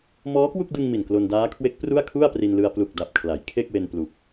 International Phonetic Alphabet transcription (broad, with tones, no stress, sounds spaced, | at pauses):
m ɔː˦˥ k w u˥˩ k̚ d ɯ˧ ŋ m i˨˩ n k l o˧ n d aː˦˥ kʰ w e˦˥ k̚ p r u˥˩ a̯ kʰ u˥˩ a̯ p r i˧ n l ɯ˧ a̯ p l u˨˩ k̚ d a˨˩ p̚ kʰ l a˩˦ j kʰ e˥˩ k̚ w e˧ n p l u˨˩ k̚